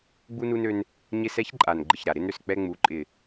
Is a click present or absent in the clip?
present